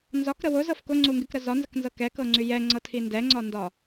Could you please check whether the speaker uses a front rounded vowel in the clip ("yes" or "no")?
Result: yes